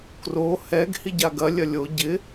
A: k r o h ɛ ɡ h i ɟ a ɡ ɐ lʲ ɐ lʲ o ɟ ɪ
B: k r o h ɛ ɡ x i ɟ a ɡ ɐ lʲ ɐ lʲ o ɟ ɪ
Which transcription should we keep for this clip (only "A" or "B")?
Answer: A